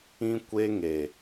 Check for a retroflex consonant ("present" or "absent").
absent